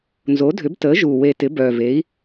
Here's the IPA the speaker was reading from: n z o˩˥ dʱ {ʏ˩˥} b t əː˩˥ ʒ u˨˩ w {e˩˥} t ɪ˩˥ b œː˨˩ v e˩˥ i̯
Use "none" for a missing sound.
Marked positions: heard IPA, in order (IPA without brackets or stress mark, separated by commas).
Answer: ʏ˩˥, e˨˩